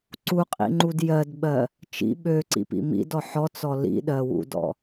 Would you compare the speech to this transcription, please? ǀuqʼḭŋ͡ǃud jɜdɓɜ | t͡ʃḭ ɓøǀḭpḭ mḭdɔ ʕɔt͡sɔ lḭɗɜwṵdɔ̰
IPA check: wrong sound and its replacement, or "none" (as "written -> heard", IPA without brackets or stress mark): ʕ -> ħ